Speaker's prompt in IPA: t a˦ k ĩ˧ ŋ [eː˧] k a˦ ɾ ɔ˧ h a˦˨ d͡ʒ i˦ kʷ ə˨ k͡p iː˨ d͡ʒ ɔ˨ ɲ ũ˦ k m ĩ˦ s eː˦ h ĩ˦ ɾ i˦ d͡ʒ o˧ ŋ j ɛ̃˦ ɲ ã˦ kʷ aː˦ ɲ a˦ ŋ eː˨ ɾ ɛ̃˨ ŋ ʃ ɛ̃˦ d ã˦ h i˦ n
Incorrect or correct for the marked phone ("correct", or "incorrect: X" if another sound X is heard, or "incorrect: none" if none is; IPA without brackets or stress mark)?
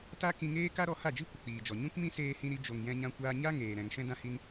incorrect: eː˦